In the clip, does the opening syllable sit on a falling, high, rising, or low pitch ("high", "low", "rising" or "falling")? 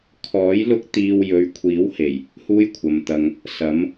rising